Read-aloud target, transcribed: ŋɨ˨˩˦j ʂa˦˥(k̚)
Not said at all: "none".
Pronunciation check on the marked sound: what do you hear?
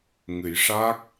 k̚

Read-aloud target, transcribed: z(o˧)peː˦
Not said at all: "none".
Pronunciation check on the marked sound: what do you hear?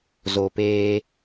o˧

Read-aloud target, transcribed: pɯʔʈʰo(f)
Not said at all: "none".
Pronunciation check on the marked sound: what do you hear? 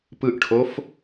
f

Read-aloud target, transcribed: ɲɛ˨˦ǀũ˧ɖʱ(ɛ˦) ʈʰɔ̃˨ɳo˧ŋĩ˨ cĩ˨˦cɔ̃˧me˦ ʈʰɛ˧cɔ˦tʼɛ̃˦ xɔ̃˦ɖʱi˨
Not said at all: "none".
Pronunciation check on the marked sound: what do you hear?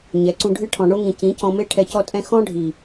ɨ˦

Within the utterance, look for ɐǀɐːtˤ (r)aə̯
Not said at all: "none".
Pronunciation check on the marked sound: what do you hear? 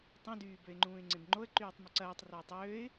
r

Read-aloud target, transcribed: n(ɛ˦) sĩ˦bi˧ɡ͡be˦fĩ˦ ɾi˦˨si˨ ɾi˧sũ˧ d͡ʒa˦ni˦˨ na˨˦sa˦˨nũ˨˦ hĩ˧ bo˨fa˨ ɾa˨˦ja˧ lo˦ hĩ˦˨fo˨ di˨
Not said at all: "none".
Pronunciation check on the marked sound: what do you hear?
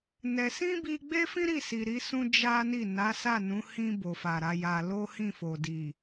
ɛ˧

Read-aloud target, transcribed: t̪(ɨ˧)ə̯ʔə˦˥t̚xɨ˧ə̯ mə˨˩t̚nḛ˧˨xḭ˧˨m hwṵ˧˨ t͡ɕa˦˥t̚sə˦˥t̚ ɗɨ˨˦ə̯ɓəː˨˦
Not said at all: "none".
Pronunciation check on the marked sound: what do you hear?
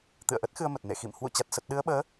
ɨ̰˧˨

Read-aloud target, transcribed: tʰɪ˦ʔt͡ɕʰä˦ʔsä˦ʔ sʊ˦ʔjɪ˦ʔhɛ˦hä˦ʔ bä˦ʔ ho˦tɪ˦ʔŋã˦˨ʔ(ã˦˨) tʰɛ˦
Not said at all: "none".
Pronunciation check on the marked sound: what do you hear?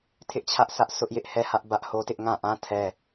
ã˦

